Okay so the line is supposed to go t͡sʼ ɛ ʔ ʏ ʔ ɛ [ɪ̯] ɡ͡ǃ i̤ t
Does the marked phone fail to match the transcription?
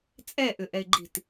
no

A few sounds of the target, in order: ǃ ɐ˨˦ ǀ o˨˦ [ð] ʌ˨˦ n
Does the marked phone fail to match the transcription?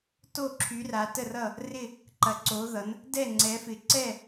no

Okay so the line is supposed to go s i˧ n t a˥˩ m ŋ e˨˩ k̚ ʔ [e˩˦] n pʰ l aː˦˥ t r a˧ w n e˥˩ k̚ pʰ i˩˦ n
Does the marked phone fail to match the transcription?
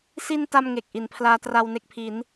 yes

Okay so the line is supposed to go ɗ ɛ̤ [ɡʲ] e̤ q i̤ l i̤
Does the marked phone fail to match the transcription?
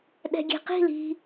no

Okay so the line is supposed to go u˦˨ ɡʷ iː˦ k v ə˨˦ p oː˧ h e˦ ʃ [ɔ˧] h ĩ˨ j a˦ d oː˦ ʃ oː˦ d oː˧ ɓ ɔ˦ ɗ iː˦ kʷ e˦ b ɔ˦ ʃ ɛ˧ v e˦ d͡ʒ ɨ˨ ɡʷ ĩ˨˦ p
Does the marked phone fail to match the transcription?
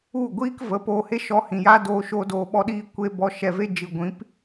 no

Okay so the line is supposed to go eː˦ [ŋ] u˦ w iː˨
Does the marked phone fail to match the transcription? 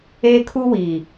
yes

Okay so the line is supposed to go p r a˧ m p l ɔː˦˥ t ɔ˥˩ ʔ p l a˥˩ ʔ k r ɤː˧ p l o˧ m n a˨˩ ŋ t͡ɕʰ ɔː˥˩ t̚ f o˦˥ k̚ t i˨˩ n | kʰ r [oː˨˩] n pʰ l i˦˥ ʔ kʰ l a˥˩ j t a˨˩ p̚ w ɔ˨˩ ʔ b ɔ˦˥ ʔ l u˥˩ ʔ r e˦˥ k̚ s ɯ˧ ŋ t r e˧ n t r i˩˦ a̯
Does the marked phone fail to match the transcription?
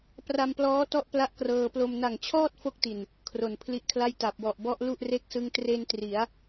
yes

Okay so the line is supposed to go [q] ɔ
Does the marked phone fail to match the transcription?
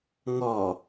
yes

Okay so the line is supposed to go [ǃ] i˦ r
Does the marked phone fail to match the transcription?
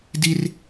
yes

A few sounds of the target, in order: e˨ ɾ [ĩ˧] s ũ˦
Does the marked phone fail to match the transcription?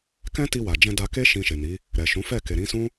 yes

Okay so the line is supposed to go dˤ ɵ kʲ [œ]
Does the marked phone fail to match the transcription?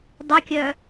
no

